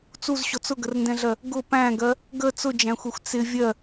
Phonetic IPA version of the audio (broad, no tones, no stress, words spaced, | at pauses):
t͡suzɕɔt͡s ʊɡərndɛ̃ɮɜ | ɡʊ pæ̃ɡɜ | ɡə t͡sʊd͡ʒæ̃xʷɛxʷ t͡sɪ vʲɜ